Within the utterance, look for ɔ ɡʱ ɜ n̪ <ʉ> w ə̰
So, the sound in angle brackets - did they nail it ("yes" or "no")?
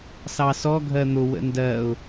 no